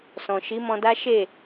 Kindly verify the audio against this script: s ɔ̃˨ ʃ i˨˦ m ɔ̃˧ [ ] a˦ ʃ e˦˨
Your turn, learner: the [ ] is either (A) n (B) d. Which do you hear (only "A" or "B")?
B